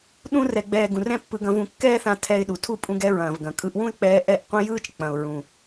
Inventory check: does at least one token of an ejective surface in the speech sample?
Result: yes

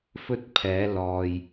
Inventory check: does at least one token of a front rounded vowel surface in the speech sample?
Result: no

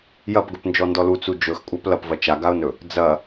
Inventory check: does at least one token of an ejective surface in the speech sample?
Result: yes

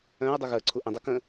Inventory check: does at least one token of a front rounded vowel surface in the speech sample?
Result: yes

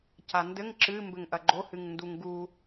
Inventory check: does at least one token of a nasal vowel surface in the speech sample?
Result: no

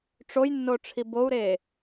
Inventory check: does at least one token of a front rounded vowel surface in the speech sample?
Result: no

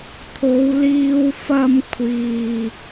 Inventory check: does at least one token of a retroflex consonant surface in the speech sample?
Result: no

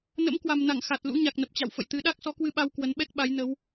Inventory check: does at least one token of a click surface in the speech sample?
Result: no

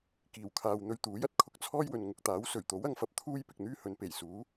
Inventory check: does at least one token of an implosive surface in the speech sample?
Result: no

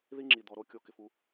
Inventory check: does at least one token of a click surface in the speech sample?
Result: yes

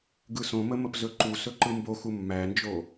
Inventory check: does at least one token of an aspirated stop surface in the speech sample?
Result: no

